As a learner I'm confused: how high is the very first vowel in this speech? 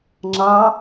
low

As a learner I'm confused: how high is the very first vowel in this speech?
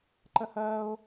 low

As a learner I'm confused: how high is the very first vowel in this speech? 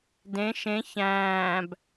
mid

